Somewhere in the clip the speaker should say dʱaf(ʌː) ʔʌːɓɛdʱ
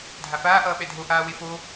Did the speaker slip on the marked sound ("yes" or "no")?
yes